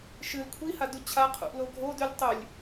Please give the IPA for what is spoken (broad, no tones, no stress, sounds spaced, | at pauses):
ʃ ɨ l kʷʰ i h a d u t͡ɕʰ a qʰ ṵ ʔ l o ɡʱ o d ʉ lʲ tˤ ʉ lʲ